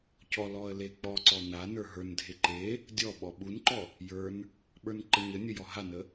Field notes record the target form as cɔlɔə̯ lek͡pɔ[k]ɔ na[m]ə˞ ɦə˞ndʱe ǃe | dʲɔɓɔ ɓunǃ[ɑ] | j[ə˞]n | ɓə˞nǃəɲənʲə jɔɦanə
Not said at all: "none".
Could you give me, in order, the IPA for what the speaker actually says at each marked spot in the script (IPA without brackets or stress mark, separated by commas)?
ǀ, n, ɔ, ə˞